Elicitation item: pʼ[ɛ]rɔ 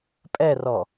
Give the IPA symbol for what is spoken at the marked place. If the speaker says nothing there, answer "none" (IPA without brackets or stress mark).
ɛ